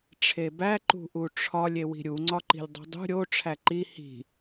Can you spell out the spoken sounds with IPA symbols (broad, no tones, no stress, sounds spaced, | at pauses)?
ʈ͡ʂʰ e b æ ǃ ṳ ʔ u ʈ͡ʂʰ ɒ lʲ e w i̤ ɾʲ u ŋ͡ǀ ɒ ǃ i̤ lʲ dˤ ṳ dˤ ṳ ɾʲ o ʈ͡ʂʰ æ ǃ i h i̤